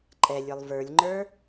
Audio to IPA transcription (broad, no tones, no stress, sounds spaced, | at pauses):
ǃʼ ɛ lʲ ə˞ lˠ v ə˞ lʲ ŋ͡ǃ ə˞